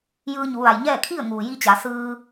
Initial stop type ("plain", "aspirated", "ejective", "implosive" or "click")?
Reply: aspirated